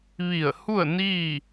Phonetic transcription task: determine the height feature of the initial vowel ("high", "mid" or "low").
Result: high